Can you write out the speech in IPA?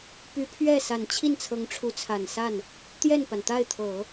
p y˧˥ pʰ ɥ ɛ˥˩ s a˨˩ n t͡ɕʰ i˥˩ n t͡sʰ ɤ˧˥ ŋ ʈ͡ʂʰ u˧˥ t͡sʰ a˨˩ n s a˥˩ n | t̪ j ɛ˥˩ n p a˩ n t̪ a˥˩ ɪ̯ t̪ʰ ɤ˨˩˦

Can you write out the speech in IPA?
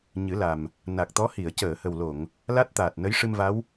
ɲ ɨ˨˩˦ l a˨˩ m | n a˨˩ k̚ t̪ ɔ˧˥ h i˨˩˨ ə̯ c əː˨˩˨ h ə˨˩ w l o˨˩˨ ŋ | l a˦˥ t̚ t̪ aː˨˩ t̚ n ə˧˥ j ʂ ɨ˧ m v a˧˥ w

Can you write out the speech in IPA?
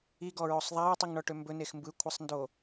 i ɡ ɔ ɹ o sˤ ðˤ a ɹ tˤ i ŋ ɳ ɔ ʈ ø m b ɵ n e x m b ɯ kʷʰ ə sˤ n d o

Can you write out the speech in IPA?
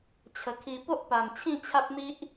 t͡ɕʰ ə˨˩ kʰ i˧ p o˦ ʔ p a˨˩ m t͡ɕʰ ĩ˥˧ t͡ɕʰ a˦ p̚ n̪ i˦ ʔ

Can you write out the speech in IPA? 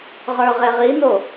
ʁ ə˞ ʁ e ʁ i n o

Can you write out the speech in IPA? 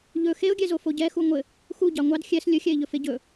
ʎ ɵ x e ʊ̯ ɡʲ ɛ z o f o ɟ ɛ x u ŋʷ ɘ | x u ɟ ɑ ŋʷ ɑ d xʲ ɛ s lʲ ɵ xʲ ɛ ɪ̯ ʎ ɵ f e ɟ ɵ

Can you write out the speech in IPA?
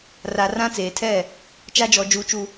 r a˨ r ã˦ t͡s eː˨ tʰ ɛ˦˨ | t͡ʃ a˦ d͡ʒ ɔ˨ d͡ʒ uː˨ t͡ʃ u˨

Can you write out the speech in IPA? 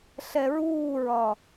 ɬ ɛ ɹ uː ɹ ɒ

